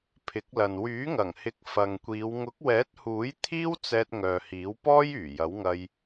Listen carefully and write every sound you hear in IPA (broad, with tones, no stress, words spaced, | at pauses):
pʰɪ˨˥k̚lɐ˨n wyː˨˥ŋɐ˨˩ŋhɪ˨˥k̚ fɐ˨ŋkʷiː˨˧w ŋʊ˨˥k̚wɛː˨˥t̚huː˨˥j t̪ʰiː˥wt͡sɛː˧t̚ ŋœː˨hiː˨˥wpɔː˥j yː˨˩jɐ˨˥wŋɐ˧j